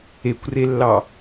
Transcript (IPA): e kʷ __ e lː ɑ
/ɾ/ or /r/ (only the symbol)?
r